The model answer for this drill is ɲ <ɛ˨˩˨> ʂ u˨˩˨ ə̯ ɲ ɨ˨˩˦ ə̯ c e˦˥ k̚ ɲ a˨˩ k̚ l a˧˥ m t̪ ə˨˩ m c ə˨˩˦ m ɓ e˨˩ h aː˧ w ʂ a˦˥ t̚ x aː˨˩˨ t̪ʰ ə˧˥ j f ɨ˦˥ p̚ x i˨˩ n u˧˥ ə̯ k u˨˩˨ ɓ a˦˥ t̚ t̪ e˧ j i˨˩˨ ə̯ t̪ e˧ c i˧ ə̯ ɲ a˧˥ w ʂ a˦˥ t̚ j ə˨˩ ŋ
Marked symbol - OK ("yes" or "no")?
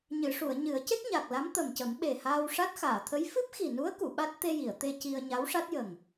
no